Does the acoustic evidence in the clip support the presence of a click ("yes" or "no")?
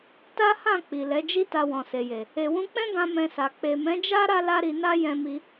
no